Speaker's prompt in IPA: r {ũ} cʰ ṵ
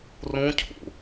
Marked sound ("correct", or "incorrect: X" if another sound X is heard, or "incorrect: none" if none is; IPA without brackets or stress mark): correct